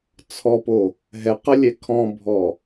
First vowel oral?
yes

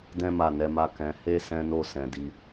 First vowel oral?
no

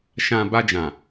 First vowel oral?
no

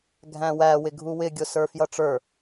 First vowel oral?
no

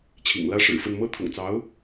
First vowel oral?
yes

